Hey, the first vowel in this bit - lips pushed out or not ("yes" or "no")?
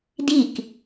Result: no